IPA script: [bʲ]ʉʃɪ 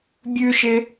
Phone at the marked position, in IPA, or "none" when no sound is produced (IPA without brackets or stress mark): bʲ